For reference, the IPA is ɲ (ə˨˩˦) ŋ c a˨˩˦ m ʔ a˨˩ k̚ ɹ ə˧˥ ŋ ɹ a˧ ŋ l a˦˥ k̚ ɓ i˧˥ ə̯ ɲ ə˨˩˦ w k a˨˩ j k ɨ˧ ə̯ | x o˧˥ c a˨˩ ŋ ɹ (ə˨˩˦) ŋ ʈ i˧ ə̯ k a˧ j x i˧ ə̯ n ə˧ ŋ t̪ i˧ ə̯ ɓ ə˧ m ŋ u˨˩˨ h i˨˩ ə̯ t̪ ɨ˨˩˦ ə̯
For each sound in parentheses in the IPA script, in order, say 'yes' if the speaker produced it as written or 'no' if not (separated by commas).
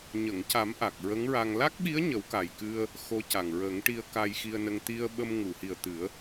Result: no, yes